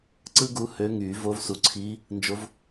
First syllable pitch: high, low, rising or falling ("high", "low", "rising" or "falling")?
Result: high